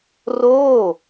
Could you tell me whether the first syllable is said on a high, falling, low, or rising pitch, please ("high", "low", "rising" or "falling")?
falling